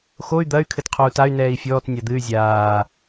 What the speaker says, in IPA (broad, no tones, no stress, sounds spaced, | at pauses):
x o y̯ d̪ ɐ y̯ kʰ ɘ t qʰ o u̯ t a y̯ n ɛː i̯ fʲ ɔː t nʲ a d̪ ɨ y̯ zʲ aː